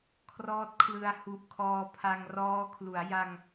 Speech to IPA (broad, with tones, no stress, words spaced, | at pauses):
kʰrɔː˦˥t̚kʰlɯ˧a̯hu˨˩ʔkʰɔː˧ pʰa˧ŋ rɔː˦˥ kʰlu˩˦a̯ja˧ŋ